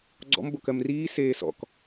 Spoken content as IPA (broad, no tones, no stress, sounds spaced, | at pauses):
ɡ͡ǀ ɔ̰ m b o k ɜ m r iː s eː s ɔ̰ k